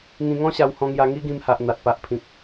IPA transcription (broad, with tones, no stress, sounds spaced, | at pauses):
ŋ ĩ˧ ŋ ɔ̃˦ ɕ a˧ w h ɔ̃˧ ŋ j a˧ ŋ i˦ ɡ ĩ˧ m h a˨ ʔ n̪ a˨ t̚ p a˨ ʔ pʰ ĩ˨ k̚